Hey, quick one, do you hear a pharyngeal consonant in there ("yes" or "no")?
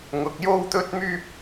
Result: no